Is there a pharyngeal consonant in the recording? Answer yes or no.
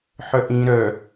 yes